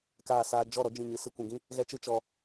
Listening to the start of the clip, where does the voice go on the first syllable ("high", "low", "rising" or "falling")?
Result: falling